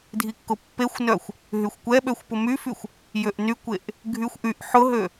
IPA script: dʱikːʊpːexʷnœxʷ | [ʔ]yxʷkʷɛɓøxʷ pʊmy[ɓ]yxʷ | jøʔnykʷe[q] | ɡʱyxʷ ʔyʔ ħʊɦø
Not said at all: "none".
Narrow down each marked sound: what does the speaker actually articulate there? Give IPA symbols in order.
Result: ɦ, f, ʔ

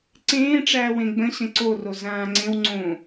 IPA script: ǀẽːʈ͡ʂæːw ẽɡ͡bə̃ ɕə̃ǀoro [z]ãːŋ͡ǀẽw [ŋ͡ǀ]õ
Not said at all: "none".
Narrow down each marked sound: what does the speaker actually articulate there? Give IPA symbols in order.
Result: z, ŋ͡ǀ

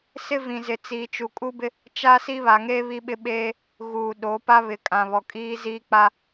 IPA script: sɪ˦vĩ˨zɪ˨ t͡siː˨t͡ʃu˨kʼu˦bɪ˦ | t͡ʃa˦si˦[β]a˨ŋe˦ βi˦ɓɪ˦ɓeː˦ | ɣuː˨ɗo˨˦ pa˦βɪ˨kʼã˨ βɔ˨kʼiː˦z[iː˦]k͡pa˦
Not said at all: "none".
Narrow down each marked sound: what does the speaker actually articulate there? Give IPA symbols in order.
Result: β, iː˦

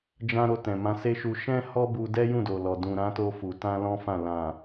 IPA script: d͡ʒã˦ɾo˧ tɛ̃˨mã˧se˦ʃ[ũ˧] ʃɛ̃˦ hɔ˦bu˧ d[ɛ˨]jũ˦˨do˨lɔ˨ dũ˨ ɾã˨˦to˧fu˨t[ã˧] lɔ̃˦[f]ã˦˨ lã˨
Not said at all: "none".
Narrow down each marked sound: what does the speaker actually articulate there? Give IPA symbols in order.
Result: u˧, ɛ˦, ã˧, f

